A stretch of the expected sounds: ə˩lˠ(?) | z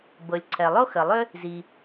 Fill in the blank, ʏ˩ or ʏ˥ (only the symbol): ʏ˥